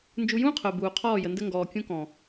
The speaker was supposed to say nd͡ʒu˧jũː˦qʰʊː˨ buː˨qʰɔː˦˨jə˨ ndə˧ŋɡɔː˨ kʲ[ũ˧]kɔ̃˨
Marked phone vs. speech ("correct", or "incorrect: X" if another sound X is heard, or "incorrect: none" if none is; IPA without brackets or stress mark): correct